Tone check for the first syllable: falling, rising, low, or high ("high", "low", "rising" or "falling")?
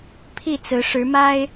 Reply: falling